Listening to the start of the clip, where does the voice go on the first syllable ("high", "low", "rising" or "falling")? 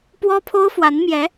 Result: high